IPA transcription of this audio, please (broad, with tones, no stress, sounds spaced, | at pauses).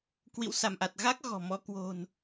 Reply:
k w ḭ˧˨ w s a˧˩ m ʔ a˨˩ t̚ ɣ aː˦˥ k̚ ɣ ɔ̤˨˩ m ɔ˧ k w o̤˨˩ n